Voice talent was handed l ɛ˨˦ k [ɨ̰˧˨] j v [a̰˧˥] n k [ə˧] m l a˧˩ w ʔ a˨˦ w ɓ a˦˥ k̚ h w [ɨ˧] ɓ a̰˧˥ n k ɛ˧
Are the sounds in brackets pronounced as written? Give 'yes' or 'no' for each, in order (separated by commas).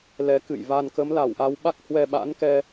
yes, no, no, no